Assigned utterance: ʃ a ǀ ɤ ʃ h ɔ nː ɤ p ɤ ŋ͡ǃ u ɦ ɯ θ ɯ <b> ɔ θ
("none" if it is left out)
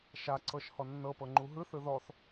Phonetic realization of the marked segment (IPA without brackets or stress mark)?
ð